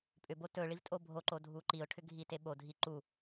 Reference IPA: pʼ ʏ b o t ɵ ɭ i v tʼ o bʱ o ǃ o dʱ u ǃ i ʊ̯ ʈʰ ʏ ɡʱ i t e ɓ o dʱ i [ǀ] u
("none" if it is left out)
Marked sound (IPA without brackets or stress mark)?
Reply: ǃ